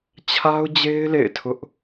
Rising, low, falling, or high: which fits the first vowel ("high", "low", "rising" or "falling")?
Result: high